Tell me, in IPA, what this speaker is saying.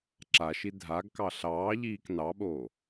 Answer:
ǁ a ʃ i dʱ a ɡ k ɑ ɬ ɑː ʎ iː k n ɑ ɓ oː

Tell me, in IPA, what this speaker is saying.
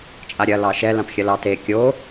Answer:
t͡ʃʼ a ɾʲ ɐ l ɑ ʃ ɛ l ã p xʲ ɐ l ɑ t e kʲ o

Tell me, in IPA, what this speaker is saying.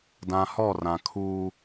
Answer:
d ã˨ h ɔ˦˨ r ã˨ kʰ uː˦

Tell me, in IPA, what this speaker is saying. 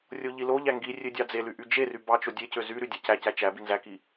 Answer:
rʲ o ʎ i l o ʎ æ ŋ ɡ i rʲ ø dʲ ɑ d͡z e l y ʔ y d͡ʒ e r y b ɑ t͡ʃ o dʲ e c ø z y ɾ y dʲ æ c æ c æ t͡ʃ æ b i n z æ k i

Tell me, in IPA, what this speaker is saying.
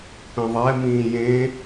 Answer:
p ẽ ðˤ ɛ m ĩː j ẽ

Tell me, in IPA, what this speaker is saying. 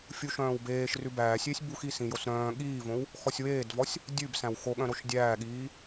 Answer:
fʲ u ʃ œ̃ː w b eː ʃ r ʉ b æː sʲ eː sʲ b u x i s ĩ j o s ɾ œ̃ː ɠ iː v õ w | x ɔ sʲ w eː d v ɔ sʲ | dʲ ʉ b s æ̃ w x o ɠ œ̃ ɾ o ʃ dʲ æː ɠ iː

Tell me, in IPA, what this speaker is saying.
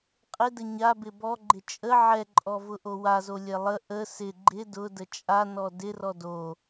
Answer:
qʼ ɪ d ə ɲ a b ɪ b ɔ ɡ͡ǃ ɪ t͡ʃʼ ə ʕ ɛ ǃʼ ɔ v ʊ ʔ o w a z o lʲ ɛ lˠ ə ʔ ə s ɪ ɡ͡ǃ ɪ d ʊ d ə t͡ʃʼ a n ɔ d ɪ r ɔ d o

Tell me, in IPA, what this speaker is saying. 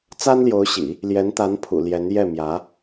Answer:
t͡s a˥ n l j o˧˥ ʊ̯ ɕ ḭ˨˩˦ | l j ɛ˧˥ n t̪ a˧˥ n pʰ ṵ˨˩ l j ɛ˧˥ n j ɛ˥˩ m j ä˧˥

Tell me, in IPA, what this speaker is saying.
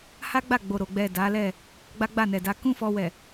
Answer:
h a˦ ɡ͡b a˦˨ ɡ͡b o˨ ɾ o˨ ɡ͡b ɛ˨ d a˨˦ l ɛ˦˨ | ɡ͡b a˦ ɡ͡b a˦˨ n ɛ˨ d a˨˦ k ũ˦ f ɔ˧ w ɛ˨

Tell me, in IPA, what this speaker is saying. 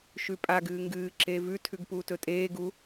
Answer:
ʃ ʉ pʼ a ɡ ɨː ŋ ɡ ɨː ǁ eː v ʉ tʰ ʉ ɡ p uː t ɵ tʼ eː ɡ u

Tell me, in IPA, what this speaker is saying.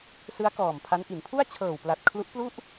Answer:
s ɯ˦˥ a̯ k ɔː˨˩ m pʰ a˦˥ n ʔ i˩˦ n pʰ u˥˩ a̯ t͡ɕʰ ɤː˨˩ w p l a˨˩ t̚ kʰ l u˦˥ ʔ p l u˥˩ ʔ

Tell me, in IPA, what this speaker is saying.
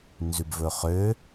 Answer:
n z ʉ b v ɵ χ ø

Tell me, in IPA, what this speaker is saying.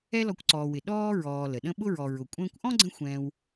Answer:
ɛ˦ l ɔ˨ kʷ ǀ ɔː˨ w ɪ˩ ɗ ɔː˥ ɹ ɔː˨ l ə˩ ɗ ə̃˦ ɓ ʊ˥ ɹ ɔ˨ ɹ ʊ˨ kʷʼ ə̃ː˥ kʷ ʔ ɔ̃˥ ɡ͡ǀ ə̃˦ xʷ ɛ̃ː˦ w

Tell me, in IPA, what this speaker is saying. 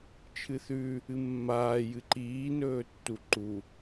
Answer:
t͡ʃʰ ɨ θ ʉ | ɨ mː aː j ɨ ǃ iː n ɵː tː u ǃ u

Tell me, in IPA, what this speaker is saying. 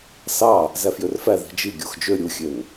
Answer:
s ɑ | z æ f j ø r f æ ð i̤ d͡ʒ i ɡʲ o x d͡ʒ ø ɾʲ u xʲ ø n

